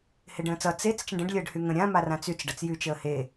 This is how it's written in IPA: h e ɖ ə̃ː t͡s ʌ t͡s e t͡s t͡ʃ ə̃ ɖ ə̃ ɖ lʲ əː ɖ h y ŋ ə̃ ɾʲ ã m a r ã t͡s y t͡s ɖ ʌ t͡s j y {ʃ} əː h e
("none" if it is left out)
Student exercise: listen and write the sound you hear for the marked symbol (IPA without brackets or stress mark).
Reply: t͡ʃ